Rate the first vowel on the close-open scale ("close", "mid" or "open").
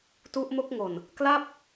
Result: close